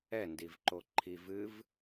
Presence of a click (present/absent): present